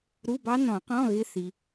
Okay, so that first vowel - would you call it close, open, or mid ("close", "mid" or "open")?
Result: close